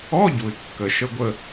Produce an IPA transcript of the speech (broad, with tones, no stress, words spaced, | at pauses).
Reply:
ɔ˧˥˧ ɟu˨ɪ̯kːə˨ ʃə˧˥˧ɡʷə˦˨